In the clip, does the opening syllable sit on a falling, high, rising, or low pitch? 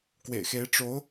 low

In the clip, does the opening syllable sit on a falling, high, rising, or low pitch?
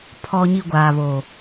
low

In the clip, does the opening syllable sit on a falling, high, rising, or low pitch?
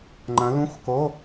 rising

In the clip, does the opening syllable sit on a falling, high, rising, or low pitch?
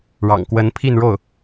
low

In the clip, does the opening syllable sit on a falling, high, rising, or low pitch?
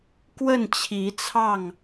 falling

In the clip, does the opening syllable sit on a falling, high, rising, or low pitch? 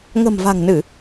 low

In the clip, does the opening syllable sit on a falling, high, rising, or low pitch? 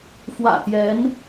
low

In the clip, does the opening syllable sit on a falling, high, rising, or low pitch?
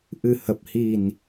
low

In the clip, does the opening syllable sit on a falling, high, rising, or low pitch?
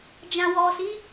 low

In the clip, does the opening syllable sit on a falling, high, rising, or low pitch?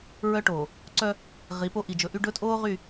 high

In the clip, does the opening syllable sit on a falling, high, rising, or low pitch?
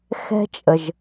high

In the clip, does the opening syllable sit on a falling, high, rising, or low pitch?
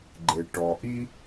low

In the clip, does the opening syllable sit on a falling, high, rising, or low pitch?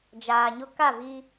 low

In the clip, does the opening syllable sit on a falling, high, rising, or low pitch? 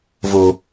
low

